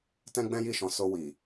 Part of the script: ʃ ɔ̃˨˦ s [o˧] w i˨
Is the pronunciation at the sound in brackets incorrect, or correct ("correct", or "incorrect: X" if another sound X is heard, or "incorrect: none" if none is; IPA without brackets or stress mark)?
correct